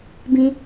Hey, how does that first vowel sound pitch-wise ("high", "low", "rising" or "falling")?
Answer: high